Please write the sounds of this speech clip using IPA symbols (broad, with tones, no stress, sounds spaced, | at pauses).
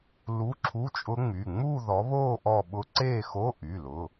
l u˧˥˧ ǁʰ u˧˥˧ t͡ʃʼ ʊ˦˥ ŋ͡m y˩˧˩ ŋ͡m u˥˧ ð ɔ˨˦ β o˥˧ ʔ ɔ˥˧ ɓ ʊ˦˥ ǀ e˥˧ x o˧˥˧ ʔ y˩˧˩ l ʊ˩˧˩